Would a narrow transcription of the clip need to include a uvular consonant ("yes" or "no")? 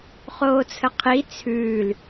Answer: yes